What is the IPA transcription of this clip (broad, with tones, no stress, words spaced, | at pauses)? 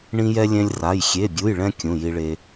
ɳĩ˥jɛ˥ lʲɛ̃˥lʲra˧˥˧j xʲe˧˥˧bʲu˧˥˧jɭɛ̃˥ kʲũ˧˥˧ji˥ɭe˥